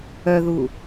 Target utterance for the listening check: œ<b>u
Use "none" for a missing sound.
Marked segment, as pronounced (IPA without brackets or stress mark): ð